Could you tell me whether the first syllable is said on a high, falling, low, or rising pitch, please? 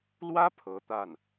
high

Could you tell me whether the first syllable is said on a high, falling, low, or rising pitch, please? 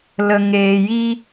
low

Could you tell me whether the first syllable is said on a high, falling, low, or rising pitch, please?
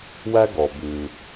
high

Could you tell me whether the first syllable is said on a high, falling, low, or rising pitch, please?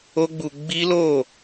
high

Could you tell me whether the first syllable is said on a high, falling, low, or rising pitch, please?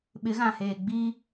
rising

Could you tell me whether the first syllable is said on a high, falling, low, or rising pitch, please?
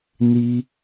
high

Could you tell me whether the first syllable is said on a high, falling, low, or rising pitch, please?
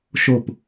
falling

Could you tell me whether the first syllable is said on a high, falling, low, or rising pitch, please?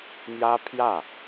high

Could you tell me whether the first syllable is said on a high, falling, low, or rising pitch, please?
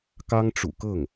high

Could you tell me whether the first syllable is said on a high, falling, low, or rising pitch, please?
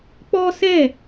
high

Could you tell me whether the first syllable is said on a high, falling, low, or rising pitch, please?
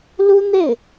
high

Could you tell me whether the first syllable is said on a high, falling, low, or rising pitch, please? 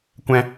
high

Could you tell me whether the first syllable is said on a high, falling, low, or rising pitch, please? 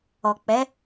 low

